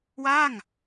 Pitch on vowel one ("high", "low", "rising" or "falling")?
falling